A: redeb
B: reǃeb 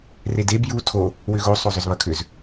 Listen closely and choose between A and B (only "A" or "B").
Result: A